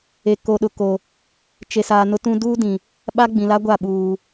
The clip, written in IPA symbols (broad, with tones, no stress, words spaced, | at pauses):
e˨ ko˨ɗʊ˨ko˨ | t͡ʃe˨saː˨ nʊ˦tũ˦ duː˦dĩ˨ | ɓa˦ɡ͡bĩ˨la˦ɡʷa˦˨ ɓuː˨